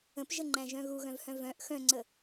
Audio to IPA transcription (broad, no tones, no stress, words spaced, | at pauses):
ə̃pʒəŋ͡ǃæ̃ʒœ̃ ɣuɣœ̃vhœ̃ vœ̃ʔ xœ̃ŋ͡ǀə